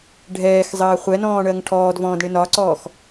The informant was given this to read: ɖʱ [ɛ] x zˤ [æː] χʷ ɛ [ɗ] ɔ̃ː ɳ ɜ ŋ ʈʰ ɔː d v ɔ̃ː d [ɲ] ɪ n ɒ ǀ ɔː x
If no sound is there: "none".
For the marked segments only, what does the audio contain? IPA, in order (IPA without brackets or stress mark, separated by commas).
ɛː, əː, n, ɳ